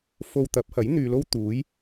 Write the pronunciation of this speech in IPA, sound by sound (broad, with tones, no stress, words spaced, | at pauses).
fo˧wt̪ɐ˨˥p̚hɐ˨˥j n̪yː˧lo˥w t̪uː˨˧j